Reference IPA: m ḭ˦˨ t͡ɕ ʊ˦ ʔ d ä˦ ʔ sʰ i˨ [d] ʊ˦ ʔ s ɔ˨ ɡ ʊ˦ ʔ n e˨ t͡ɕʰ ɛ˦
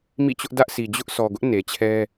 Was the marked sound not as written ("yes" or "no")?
yes